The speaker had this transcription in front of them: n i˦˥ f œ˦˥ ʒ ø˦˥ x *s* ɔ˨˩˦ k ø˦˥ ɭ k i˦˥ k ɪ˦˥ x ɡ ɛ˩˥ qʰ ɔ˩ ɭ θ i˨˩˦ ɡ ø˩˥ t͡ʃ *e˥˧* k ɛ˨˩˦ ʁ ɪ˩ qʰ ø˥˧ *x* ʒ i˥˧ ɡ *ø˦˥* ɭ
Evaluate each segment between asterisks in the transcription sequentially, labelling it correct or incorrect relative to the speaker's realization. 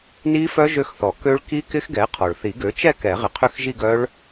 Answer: incorrect, incorrect, correct, incorrect

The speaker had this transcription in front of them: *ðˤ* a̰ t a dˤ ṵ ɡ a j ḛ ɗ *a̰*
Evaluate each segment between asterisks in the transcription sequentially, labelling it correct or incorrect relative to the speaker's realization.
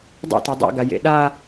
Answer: incorrect, incorrect

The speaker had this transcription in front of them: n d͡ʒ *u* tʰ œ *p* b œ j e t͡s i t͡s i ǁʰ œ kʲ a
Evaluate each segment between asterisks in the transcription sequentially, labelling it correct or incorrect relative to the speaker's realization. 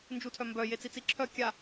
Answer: correct, incorrect

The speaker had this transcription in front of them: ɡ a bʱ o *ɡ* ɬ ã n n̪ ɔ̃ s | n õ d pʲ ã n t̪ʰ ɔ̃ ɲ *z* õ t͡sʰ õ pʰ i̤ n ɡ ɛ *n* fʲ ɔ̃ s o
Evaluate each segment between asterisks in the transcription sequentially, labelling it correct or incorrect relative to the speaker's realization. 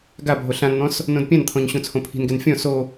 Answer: incorrect, incorrect, correct

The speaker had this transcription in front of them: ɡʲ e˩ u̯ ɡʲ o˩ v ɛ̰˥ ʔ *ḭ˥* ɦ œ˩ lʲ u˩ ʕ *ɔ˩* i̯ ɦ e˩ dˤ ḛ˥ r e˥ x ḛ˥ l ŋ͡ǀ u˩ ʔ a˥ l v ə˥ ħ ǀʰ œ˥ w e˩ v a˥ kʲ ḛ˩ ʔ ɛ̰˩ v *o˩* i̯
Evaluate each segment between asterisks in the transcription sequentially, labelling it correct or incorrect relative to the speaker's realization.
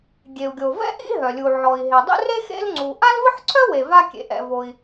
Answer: correct, correct, correct

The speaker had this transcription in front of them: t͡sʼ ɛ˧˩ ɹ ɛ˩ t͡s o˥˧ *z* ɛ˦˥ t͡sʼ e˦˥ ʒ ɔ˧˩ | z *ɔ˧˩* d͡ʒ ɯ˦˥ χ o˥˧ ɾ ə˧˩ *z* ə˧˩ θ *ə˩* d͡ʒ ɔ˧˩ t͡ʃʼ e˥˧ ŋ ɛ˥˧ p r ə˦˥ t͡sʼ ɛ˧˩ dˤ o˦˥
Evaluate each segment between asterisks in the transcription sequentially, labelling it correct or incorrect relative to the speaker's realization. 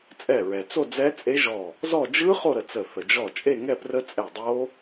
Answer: incorrect, incorrect, incorrect, correct

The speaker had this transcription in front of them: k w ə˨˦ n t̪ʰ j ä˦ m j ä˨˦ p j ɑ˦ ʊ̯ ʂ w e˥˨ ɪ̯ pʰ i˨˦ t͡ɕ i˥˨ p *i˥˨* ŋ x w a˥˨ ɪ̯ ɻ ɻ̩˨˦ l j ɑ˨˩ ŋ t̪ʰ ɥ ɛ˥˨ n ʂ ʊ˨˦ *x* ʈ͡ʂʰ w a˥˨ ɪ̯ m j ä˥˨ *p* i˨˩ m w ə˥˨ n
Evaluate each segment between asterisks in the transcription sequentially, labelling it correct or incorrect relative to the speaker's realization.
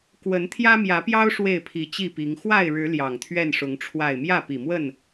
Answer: incorrect, incorrect, correct

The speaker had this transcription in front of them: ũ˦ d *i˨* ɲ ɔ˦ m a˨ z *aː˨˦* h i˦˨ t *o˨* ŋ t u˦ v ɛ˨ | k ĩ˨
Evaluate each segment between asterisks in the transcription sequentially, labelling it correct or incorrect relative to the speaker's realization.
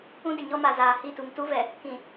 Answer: incorrect, incorrect, incorrect

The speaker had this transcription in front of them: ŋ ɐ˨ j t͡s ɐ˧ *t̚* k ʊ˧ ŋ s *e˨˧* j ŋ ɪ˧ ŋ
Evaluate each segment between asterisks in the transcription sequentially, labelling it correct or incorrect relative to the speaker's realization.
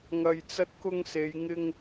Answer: correct, correct

